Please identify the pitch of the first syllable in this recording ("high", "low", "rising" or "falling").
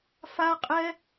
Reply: high